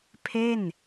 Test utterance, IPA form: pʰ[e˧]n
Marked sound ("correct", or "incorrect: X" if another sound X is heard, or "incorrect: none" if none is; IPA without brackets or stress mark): incorrect: e˥˩